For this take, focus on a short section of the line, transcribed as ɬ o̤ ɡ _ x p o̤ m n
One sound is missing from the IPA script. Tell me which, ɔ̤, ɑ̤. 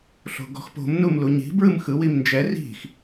ɔ̤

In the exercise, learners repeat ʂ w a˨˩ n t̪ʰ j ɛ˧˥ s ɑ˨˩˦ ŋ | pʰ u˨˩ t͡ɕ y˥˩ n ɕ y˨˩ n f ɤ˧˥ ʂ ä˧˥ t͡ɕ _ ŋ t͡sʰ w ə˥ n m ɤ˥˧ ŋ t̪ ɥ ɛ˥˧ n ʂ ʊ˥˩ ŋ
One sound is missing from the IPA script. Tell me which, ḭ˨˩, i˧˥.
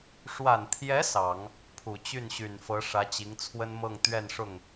i˧˥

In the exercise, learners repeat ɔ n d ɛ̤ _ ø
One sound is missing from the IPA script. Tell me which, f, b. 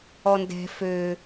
f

